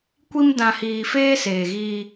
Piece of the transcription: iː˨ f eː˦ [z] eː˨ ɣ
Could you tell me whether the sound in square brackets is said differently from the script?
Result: yes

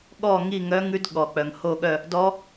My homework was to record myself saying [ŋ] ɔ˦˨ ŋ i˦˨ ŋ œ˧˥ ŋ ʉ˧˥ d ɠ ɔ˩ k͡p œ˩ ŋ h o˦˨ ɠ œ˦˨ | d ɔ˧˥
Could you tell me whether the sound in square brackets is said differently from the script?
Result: yes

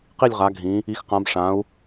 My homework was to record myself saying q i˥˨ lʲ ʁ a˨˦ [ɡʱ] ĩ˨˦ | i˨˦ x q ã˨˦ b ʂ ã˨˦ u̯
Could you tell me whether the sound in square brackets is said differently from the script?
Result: no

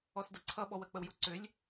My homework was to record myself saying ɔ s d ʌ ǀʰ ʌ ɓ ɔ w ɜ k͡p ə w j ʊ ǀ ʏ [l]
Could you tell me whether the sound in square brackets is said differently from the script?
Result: yes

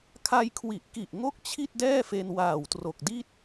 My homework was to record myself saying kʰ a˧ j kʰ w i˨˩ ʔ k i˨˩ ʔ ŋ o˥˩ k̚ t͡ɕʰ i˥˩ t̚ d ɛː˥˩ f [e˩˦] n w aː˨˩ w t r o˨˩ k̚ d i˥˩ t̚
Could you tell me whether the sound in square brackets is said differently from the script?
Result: yes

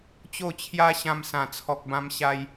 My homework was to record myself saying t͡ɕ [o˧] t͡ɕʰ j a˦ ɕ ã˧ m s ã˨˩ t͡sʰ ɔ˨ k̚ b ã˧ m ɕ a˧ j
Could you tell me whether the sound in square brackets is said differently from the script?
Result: yes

